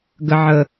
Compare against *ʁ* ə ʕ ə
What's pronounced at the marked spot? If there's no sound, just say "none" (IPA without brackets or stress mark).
ɡ